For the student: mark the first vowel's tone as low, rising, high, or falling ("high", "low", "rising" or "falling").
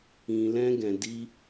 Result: low